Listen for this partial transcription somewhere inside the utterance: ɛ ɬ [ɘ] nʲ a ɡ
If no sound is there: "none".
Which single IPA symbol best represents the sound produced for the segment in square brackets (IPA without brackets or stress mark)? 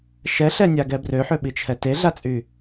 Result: ɛ